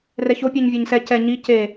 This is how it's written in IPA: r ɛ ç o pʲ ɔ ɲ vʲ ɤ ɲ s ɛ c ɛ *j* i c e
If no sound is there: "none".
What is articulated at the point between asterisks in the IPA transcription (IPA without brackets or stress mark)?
ɲ